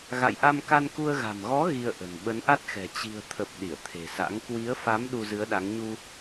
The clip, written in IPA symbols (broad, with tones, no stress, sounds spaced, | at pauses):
ɣ a̰˧˨ j ʔ a˧ m k a˧ n k u˧ ə̯ ɣ a̤˨˩ m ɣ ɔ˨˦ ɣ i˧ ə̯ ʔ ə̤˨˩ n ɓ ə˨˦ n ʔ a˦˥ t̚ x ɛ̤˨˩ t͡ɕ i̤˨˩ ə̯ t̪ʰ ə˨˩ p̚ ɗ i˧˩ ə̯ t̪ʰ e̤˨˩ s a̰˧˥ ŋ k w i˨˦ ə̯ f a˨˦ m ɗ u˧ z ɨ˨˦ ə̯ ɗ a˨˦ ŋ ɲ u˧